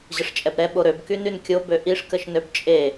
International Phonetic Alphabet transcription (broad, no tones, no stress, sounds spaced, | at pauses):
ʑ ə ʂ t͡ʃʼ ɛ b ɾ ɛ ɓ o ɾ ø b k y n y n kʲ o b ø ʔ i ʂ k ə ʃ n ø b t͡ʃʼ e